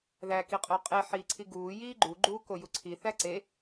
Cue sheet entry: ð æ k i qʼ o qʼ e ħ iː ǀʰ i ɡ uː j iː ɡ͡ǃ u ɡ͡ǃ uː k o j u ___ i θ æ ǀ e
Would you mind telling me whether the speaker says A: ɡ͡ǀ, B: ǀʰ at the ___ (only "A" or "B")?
B